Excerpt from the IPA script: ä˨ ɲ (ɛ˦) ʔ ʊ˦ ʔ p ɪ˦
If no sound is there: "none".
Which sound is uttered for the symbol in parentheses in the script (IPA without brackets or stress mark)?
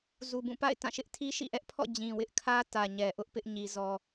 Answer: ɛ˨